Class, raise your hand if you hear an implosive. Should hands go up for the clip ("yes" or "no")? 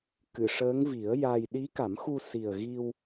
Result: yes